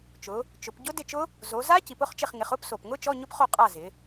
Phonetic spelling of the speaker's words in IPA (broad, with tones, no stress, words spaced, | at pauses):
t͡ʃʊ˩˧ | t͡ʃʊ˩˧pɟʊ˦˥ dɪ˦˨t͡ʃʊ˦˥ | zo˩˧za˦˥ ci˩˧pʊ˧˥˧χt͡ʃɪ˦˨χŋɪ˩˧χ ʊ˧˥˧pso˨˩pŋʊ˦˥ t͡ʃɔ˧˥˧ɲʊ˦˥pχo˦˨ qʼa˦˨zɪ˩˧